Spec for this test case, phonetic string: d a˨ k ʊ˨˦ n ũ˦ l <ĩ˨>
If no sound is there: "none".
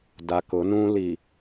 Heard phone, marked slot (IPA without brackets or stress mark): i˨